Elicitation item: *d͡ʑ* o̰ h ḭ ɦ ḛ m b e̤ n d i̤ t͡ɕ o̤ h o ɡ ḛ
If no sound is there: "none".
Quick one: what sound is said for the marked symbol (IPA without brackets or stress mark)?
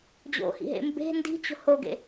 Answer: d͡ʑ